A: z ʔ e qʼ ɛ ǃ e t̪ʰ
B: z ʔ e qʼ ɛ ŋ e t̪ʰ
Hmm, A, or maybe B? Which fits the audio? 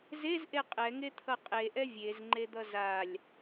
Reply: B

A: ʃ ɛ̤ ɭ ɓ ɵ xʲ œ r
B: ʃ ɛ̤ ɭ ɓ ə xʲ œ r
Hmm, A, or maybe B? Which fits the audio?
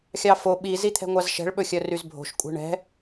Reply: A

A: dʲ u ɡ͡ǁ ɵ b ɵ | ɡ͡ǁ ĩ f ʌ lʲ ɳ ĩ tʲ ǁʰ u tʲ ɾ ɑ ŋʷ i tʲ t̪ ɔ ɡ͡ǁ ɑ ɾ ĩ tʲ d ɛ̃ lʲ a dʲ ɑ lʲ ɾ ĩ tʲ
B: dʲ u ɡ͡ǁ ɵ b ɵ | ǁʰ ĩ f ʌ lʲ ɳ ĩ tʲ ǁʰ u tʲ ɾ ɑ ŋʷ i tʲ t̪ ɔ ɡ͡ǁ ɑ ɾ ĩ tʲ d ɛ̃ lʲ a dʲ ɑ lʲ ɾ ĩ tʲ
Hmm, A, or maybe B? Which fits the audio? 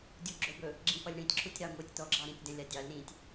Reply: A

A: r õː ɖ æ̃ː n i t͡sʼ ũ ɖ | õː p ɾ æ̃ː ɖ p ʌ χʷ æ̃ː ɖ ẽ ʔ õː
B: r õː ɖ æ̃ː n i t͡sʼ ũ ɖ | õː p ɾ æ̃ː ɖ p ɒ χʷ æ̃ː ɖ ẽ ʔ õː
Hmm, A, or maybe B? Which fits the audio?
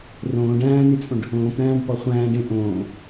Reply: B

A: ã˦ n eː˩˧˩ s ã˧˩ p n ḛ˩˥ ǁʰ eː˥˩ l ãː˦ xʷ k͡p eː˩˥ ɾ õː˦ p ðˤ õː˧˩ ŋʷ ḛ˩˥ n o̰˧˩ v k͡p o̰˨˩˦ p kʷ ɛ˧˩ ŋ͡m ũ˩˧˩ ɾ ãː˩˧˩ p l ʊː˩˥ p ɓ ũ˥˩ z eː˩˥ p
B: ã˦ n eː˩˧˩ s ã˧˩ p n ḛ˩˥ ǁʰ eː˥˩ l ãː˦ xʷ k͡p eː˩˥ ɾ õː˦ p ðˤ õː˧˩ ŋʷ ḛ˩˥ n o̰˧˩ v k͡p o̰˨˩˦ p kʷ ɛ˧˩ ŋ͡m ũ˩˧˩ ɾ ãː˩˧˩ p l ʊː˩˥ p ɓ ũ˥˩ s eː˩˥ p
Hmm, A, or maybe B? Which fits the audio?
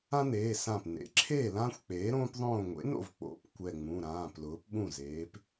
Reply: A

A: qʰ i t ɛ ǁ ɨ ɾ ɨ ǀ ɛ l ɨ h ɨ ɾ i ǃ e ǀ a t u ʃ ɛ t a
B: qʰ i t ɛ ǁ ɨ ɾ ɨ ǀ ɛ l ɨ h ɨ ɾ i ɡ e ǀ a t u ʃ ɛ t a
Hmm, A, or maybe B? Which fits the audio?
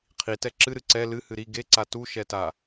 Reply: B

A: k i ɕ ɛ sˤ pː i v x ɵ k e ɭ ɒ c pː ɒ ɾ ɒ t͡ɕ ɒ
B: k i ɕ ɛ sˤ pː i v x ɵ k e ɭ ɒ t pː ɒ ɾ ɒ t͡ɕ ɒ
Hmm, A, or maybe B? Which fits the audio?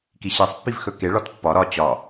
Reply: B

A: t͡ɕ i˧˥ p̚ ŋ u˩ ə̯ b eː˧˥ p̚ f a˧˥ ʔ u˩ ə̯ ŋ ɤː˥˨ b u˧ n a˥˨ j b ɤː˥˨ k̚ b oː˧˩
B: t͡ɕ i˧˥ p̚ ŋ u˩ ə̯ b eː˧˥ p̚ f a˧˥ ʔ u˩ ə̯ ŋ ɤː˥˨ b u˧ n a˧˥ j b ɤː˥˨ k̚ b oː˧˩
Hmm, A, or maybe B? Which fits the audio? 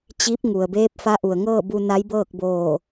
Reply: B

